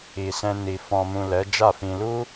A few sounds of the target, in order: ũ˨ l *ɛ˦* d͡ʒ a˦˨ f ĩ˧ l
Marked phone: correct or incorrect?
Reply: incorrect